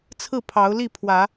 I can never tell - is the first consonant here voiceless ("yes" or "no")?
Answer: yes